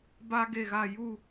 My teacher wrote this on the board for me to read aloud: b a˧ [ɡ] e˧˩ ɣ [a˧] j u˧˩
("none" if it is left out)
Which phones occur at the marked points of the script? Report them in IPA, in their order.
ɡ, a˧˩

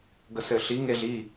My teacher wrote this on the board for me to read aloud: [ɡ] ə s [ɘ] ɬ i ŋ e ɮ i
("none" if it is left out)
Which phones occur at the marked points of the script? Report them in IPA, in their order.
ɡ, ɘ

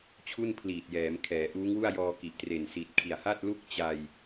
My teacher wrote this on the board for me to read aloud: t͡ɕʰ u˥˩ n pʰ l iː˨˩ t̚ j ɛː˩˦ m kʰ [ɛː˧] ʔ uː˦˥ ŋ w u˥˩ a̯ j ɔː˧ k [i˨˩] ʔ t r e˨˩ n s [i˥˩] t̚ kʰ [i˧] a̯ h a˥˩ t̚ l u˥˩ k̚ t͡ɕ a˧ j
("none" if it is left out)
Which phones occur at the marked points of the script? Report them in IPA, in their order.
ɛː˩˦, i˨˩, i˨˩, i˨˩

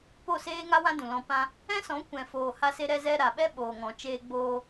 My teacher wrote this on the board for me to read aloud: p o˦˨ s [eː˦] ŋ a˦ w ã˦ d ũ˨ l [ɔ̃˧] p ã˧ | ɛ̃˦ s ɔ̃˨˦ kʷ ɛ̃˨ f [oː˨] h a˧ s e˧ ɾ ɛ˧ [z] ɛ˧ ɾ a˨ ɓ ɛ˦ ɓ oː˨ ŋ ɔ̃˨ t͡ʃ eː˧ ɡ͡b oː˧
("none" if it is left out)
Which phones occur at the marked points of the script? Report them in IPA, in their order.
eː˦, ɔ̃˧, oː˨, z

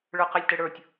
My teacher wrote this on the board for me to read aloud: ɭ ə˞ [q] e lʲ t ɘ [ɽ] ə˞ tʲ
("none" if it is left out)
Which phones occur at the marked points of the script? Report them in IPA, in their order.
q, ɽ

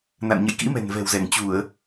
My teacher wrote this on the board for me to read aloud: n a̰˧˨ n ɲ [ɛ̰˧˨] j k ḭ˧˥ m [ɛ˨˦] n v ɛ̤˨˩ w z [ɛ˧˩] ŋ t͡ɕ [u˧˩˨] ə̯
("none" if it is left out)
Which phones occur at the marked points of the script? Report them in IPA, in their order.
ə̰˧˨, ɛ̤˨˩, ɛ˧˩, u˧˩˨

